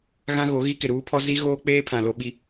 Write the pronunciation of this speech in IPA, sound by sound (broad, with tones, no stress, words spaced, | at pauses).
ɣã˦ɣo˨˦ɣi˦ kɪ˨ɾuː˦pʰɔ˦ zi˦ ɣoː˦k͡peː˦pʰã˨ lo˦ɓi˦